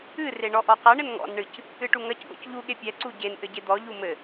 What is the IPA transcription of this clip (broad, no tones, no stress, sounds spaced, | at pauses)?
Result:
ɨ r e ɳ ɔ ʔ ɔ q ɐ ɳ ɘ n ŋ ɔ̰ n ɳ ɨ c | ɨ ʈ u ŋ ɐ c ɡ ɔ̰ c ʎ u ɠ e pʲ ɛ ǀ u ɟ e n ʔ ɘ ɟ e d̪ ɔ ʎ u m ɘ